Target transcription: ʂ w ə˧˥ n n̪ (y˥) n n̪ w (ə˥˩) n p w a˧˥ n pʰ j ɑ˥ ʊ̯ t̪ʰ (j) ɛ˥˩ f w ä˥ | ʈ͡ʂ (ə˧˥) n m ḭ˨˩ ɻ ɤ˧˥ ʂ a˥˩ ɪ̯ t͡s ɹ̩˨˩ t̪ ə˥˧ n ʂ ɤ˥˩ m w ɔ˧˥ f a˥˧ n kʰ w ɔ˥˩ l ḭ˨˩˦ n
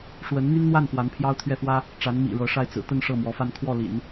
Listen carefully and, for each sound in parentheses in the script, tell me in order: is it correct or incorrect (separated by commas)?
correct, incorrect, incorrect, incorrect